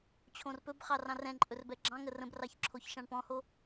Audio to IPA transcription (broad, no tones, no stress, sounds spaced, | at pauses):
t͡ɕʰ õ r p ɵ b χ ɑ r ɑ̃ r ɛ̃ ǃʼ ɵ r b ɛ ɡ͡ǁ ɑ̃ ŋ ə r ə̃ b r ɑ ç ǁʰ o ç ʃ ɑ̃ ɳ p ɔ̃ h o